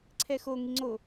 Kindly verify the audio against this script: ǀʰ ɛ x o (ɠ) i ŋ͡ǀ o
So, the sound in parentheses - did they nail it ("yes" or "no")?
no